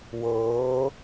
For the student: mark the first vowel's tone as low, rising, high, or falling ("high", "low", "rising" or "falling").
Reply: rising